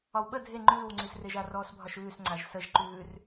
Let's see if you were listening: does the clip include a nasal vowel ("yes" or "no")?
no